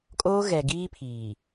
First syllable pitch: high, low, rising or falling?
high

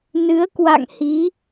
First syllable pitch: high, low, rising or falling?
rising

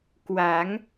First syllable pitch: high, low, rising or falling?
rising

